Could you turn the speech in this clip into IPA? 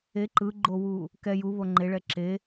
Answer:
e ǃɯɡ͡ǃowu | kɛ juβo ŋ͡ǃeɭɛ ǁe

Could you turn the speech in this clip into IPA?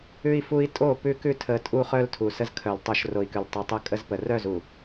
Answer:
ʉ˦i̯fu˦i̯ tʼo˦˨pʉ˦kʉ˦ tʰə˨ tʼu˦χœ˦l tʰu˨sə˦zkʰœ˨l tˤœ˨ʃ ro˨i̯kʉ˨l tˤu˨tˤə˦˨kʼə˦zpə˨ rœ˦˨zu˨

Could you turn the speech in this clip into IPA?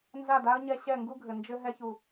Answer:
nza˦˨da˦ə̯ɲɛ˧ ɕɛ˦˨ŋɡu˦ɡʱɘ˨ nd͡ʒɘ˧ɦɛ˧çu˨

